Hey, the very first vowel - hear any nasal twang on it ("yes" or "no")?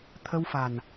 no